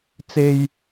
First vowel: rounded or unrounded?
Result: unrounded